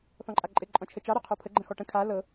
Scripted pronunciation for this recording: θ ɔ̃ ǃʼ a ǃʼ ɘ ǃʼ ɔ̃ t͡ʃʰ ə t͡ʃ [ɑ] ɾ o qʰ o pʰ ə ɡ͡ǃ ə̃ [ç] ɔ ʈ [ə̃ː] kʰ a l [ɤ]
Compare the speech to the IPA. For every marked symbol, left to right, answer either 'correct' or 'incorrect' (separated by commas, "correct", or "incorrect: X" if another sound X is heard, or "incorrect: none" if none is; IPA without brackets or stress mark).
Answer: correct, incorrect: x, incorrect: ə̃, correct